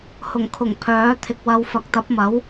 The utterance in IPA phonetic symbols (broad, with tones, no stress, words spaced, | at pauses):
hʊ˨˩ŋkʰʊ˨˩ŋ pʰœː˨˥t̪ʰɪ˨k̚wɐ˧w fɐ˨˥k̚t̪ɐ˨˥p̚mɐ˨˥w